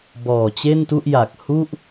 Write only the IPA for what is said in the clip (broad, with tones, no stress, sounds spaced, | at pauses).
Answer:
b ɔː˨˩ t͡ɕ e˥˩ n t u˥˩ ʔ j a˨˩ k̚ h u˥˩ ʔ